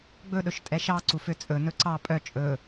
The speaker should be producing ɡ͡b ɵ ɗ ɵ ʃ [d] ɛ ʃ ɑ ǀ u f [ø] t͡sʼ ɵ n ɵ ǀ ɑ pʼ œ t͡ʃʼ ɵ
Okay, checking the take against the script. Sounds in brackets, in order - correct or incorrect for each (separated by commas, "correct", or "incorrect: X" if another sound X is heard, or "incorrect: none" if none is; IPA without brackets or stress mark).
incorrect: tʼ, correct